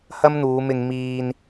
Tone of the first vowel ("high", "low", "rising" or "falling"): high